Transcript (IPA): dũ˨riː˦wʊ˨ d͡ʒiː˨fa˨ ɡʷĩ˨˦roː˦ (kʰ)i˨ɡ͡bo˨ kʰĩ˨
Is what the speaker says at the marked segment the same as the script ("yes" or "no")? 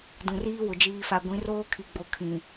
yes